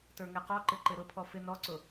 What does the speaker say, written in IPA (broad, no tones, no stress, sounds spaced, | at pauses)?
t ə˞ ŋ ɛ q ɔ ǃ ɪ ǃ ɪ ɾ ʊ pʰ ɔ f ɪ n ɔ ǀ ʊ